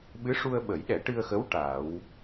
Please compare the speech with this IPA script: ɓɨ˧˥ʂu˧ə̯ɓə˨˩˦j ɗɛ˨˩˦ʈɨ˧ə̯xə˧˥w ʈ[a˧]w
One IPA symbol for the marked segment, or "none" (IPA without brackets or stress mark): a˨˩˦